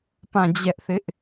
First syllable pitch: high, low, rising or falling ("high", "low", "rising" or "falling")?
falling